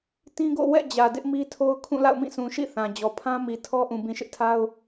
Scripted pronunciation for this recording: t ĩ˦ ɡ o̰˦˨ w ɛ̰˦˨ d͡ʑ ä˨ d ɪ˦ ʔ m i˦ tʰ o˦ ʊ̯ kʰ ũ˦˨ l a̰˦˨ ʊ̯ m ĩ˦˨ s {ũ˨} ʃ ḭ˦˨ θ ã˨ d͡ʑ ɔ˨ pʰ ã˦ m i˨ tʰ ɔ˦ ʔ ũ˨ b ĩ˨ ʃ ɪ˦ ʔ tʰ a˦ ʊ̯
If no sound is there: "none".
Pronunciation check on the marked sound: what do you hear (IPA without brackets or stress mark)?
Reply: ũ˨